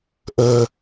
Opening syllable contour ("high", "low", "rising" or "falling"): low